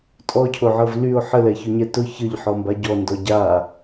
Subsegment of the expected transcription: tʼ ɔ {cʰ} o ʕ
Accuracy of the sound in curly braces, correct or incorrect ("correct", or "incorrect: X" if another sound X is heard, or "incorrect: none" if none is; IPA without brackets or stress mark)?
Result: correct